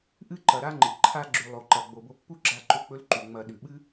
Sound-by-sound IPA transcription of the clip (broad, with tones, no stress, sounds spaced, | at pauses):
ʔ ɨ˦ ǃ ɐ˨ ɾ a˦ ŋ͡ǃ ɨ˨ ǃʰ a˧ ɡ͡ǁ ʉ˨ lˠ o˨ ǃ ɐ˨ ɡ͡b o˨ b o˧ pː u˦ ɡ͡ǁ a˧ ǃ ɵ˧ k͡p ɵ˦ l ǃ u˨ ŋ͡m ɐ˧ ɗ ʉ˨ ɓ ɨ˦